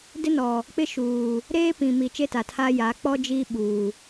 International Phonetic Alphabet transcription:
dɪ˦nɔ˨ | k͡pɪ˦ʃuː˨ | ɾeː˦pĩ˨mi˨ t͡ʃe˦ta˨tʰaː˦jaː˨˦ k͡pɔ˦ d͡ʒiː˦ɓuː˨

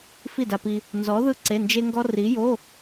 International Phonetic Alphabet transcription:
fi˥˩da˧pi˧ | nzɔ˨˥ ðɯ˥ǀe˧˥˧nd͡ʒe˥ŋɡɔ˥ ri˨˥jo˧˥˧

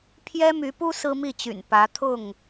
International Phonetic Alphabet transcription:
pʰjɛ˦my˨˦pu˦ sɹ̩˦mi˥˨t͡ɕy̰˨˩n pä˨˦t̪ʰʊ˥˨ŋ

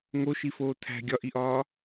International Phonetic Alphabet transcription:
ŋoʃifoː tʰæ̤ ɡʲɒʔiʔɒː

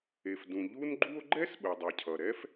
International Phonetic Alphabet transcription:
e˩fdũ˩ ʎu˥n ɡ͡ǃu˥o̯ ɡ͡ǃɛ˥sɓɯ˩dˤɯ˩cʰʌ˩ ɾɛ˥f

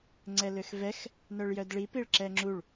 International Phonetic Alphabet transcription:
ŋ͡ǀɛløxvɛx | nœɭjœdɭi piɭǁɛŋ͡ǁuɭ

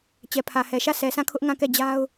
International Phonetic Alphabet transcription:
t͡ɕɛ˨pʰä˨hɛ˨ʃä˦˨ sʰɛ˨sʰã˦˨kʰʊ˦ʔ ŋã˦˨kɛ˦˨d͡ʑa˦ʊ̯

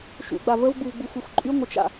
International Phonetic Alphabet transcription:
ʃṵɡ͡ba vəvɡ͡buv ɡ͡buxʷœxʷǃʼy ŋʷət͡ʃa̰

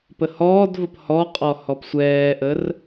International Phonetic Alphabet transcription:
pəhɔːdvəp hɔqʼɔ hɔpsʷɛːʔər

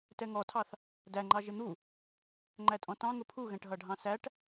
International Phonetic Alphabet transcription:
tɛŋɔtʰɑθ | dæŋ͡ǃɑ ʒɪn̪u | ŋ͡ǃætʼɔ̃tɑ̃ ŋʊpʰuɣɛ̃ʈ ɦʌɖʱɑ̃sæʈ

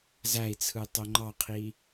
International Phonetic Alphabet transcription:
zæi̯t͡sʰɯ tˤoŋ͡ǃɑqʰi

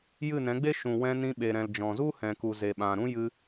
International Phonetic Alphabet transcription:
jɨ˦˨nɛ̃˨˦ɡ͡be˦ ʃũ˨wɛ̃˧nĩ˧ ɓe˨ ɾɛ̃˨l d͡ʒɔ̃˨zu˦hɛ̃˨ku˨ ze˨ɓã˨ɾũ˦ jɨ˧

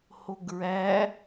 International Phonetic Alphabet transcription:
hoɡɹæ

